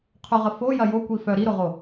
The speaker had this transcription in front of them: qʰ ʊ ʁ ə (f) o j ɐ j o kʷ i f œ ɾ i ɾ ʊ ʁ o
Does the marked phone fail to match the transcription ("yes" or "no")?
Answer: no